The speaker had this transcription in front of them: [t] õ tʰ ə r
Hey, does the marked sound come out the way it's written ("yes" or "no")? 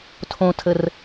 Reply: no